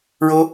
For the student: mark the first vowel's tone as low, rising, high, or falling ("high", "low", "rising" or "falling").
high